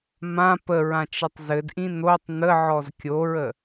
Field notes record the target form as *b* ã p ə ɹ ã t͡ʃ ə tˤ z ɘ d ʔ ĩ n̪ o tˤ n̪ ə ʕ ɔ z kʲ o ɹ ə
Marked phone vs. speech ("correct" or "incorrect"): incorrect